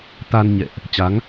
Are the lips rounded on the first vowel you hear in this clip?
no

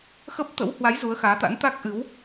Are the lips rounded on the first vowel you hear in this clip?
no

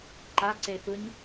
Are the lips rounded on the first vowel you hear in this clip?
no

